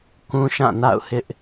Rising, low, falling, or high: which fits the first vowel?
high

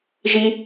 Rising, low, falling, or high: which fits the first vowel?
high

